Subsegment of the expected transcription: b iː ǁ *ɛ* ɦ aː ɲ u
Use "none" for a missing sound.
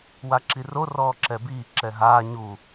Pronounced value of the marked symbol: ɛ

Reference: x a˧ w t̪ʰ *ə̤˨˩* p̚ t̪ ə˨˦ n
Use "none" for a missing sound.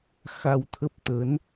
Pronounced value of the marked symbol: ə˦˥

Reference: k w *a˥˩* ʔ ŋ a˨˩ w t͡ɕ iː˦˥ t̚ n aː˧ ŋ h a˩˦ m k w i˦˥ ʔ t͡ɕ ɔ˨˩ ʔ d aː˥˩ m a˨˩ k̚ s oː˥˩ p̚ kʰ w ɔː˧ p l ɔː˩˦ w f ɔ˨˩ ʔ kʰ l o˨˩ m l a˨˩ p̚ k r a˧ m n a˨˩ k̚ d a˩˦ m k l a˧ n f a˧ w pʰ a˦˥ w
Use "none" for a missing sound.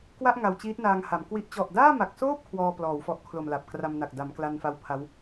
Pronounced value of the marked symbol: a˥˩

